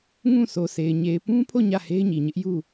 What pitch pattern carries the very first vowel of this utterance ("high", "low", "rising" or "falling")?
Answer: falling